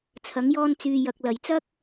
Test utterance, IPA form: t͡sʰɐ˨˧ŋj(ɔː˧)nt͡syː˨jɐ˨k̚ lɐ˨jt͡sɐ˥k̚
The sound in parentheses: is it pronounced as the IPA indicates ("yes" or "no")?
yes